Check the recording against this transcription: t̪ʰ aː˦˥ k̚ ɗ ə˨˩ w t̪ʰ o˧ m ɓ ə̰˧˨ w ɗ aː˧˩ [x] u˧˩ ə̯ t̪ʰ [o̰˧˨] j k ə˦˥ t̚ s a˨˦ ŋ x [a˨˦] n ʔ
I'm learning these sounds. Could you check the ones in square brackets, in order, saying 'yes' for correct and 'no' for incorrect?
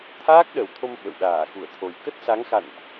yes, no, no

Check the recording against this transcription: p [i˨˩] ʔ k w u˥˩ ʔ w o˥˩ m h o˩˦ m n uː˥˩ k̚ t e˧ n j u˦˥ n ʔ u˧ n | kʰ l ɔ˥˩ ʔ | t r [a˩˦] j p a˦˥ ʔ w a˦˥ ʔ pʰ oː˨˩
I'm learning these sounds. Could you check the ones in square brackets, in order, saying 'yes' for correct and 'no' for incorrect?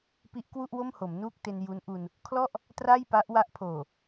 no, no

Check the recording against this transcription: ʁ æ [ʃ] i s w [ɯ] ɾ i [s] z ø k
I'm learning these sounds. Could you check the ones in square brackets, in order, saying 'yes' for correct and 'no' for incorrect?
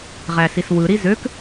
no, yes, no

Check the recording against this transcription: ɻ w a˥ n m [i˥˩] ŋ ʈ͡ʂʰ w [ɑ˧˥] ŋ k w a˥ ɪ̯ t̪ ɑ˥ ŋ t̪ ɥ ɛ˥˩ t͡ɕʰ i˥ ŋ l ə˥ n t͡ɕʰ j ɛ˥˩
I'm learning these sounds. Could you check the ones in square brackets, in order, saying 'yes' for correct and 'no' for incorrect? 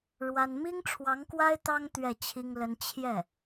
no, yes

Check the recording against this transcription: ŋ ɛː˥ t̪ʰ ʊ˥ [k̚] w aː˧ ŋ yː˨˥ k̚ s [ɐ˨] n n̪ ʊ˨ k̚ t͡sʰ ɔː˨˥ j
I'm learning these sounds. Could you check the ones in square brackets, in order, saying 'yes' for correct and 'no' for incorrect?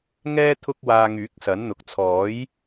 yes, no

